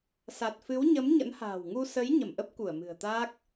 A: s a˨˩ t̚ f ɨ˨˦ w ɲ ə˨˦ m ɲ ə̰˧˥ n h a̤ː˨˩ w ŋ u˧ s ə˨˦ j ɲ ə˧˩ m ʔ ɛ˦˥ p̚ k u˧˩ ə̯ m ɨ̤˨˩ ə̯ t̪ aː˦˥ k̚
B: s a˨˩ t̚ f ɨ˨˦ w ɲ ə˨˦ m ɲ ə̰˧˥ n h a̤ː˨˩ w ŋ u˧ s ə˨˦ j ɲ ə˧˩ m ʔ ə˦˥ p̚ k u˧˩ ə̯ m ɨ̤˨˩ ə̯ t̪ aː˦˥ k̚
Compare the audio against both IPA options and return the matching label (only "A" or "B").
B